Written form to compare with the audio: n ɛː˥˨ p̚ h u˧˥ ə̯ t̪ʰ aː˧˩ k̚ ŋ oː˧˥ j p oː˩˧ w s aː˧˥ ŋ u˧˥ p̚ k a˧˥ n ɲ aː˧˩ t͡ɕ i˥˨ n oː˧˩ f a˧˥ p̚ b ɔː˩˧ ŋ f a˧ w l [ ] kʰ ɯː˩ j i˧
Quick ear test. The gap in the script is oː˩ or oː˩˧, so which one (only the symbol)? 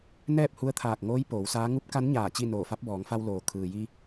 oː˩